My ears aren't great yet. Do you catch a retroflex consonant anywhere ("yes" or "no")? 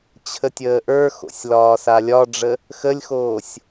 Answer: yes